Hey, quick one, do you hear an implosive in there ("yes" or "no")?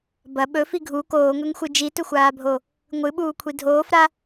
yes